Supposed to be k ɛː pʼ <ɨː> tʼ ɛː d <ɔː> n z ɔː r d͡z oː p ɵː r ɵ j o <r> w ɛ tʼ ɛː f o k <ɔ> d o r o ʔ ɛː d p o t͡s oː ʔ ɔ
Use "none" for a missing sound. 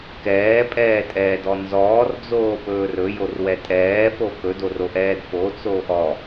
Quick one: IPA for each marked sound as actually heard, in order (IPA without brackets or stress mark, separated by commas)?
ɛː, ɔ, r, ɵ